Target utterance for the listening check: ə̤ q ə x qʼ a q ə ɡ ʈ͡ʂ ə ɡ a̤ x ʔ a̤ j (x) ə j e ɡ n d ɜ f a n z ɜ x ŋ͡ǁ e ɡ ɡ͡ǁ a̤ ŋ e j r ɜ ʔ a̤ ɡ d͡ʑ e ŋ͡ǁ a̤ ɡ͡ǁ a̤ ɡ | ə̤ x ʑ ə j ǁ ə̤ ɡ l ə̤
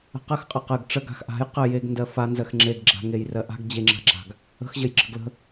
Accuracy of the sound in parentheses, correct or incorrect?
incorrect